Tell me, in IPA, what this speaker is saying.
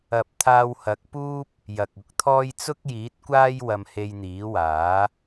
ɐ˨p̚t̪ʰaː˧whɐ˨˥k̚puː˥p̚ | jɐ˨k̚ʊ˨˥k̚t̪ʰɔː˥j t͡sʊ˥k̚jiː˨˥t̚kʷaː˥j wɐ˧mhe˧jn̪iː˨˥waː˨˥

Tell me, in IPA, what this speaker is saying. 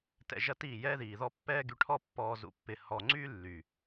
tɛ̰˧ʒɐ˦tiː˦˨ jɛː˦ðiː˨ðɔ˦ pːɛː˦ɡy˧ʈʰɔ˦ pːɔː˧ zṵ˧pːɪ˨ hɔ˨ ŋ͡ǀy˦ lːy˨

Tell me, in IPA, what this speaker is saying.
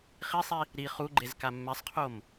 χisˤi | ɾi χuɡ͡ǃez kamːɛsˤqʰom

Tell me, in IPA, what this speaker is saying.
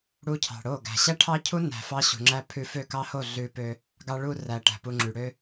ɽu˧cʰɑ̤˨ ɽo˦˨ ɡæ̤˨ɕæ˦ʈʰɑ˦cʰu˦ næ̤˧ fɑ˦ɕṳ˨ŋ͡ǁæ˦ pʰʉ˧fø˦˨kɑ˦ho˦˨ ɮʉ˧pø˧ | ɡɑ˧ɭu˧ræ˨ ʈæ̤˨pu˧ŋ͡ǁy˨ ɽø˦

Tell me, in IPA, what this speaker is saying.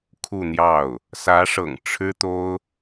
kʰu˥˧n̪jɑ˥˩ʊ̯ | sä˧˥ʂɤ̰˨˩ŋ ʈ͡ʂʰɻ̩˥t̪o˥ʊ̯

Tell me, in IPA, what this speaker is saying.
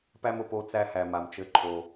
pæ˦mʊ˨ po˦ t͡sæ˦hæ˨ma˨mt͡ʃɘ˧ ǃʰo˨

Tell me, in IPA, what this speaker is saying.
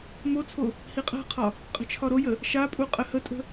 mot͡sʰo | hiqʼa̤qʰɒ | qʼə̤t͡ʃʰɒɾojə | ʃapʼu qʼəhətʼə̤

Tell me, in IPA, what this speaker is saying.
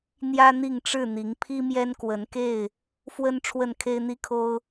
n̪jä˦n̪i˥˨ŋ ʈ͡ʂɻ̩˥˨n̪i˨˦ŋpʰi˦ mjɛ˦nkwə˨˦nke˥˨ɪ̯ | fwə˦n ʈ͡ʂʰwə˥˨nkʰe˦ɪ̯n̪i˦kʰo˦ʊ̯

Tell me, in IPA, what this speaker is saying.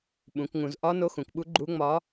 ɓũ˩˧kŋũ˩˧z ʔɒ˧˥ no˧˥xũ˩˧kɓu˧˥ ɡ͡ǃu˧˥ŋ͡mɒ˧˥

